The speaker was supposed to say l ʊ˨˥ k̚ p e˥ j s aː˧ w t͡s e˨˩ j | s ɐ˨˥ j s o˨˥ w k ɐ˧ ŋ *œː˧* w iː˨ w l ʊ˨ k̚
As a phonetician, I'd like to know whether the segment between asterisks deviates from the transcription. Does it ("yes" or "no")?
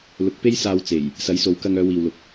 yes